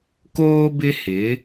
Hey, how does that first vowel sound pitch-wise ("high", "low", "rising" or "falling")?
high